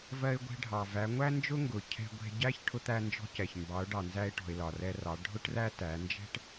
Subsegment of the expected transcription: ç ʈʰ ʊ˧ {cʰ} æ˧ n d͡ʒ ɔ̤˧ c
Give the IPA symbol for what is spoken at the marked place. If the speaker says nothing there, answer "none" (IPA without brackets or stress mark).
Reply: t̪